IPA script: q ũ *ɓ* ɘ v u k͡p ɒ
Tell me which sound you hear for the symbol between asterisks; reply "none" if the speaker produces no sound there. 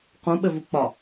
ɓ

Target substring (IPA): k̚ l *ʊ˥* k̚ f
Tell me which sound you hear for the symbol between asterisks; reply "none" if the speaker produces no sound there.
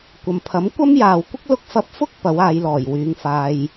ʊ˧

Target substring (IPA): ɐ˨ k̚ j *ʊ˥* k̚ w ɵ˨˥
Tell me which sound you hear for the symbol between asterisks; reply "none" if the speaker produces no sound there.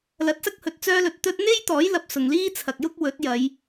ʊ˥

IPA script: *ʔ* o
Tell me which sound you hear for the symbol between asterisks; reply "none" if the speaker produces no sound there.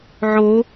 ʕ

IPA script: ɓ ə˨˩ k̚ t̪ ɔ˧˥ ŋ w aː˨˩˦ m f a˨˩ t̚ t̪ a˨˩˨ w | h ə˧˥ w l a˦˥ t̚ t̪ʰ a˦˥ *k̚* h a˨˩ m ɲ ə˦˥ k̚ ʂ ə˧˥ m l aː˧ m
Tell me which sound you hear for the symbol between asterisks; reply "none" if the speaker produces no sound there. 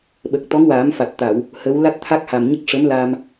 k̚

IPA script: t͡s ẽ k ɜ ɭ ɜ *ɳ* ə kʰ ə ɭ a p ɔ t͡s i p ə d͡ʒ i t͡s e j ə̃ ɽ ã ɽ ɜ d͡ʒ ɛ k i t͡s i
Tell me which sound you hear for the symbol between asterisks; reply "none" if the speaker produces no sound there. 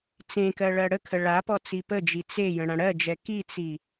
ɽ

